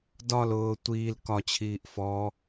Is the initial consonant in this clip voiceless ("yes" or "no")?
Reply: no